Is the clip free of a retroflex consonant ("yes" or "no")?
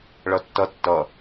no